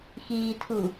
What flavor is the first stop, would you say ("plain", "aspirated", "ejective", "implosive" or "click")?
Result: aspirated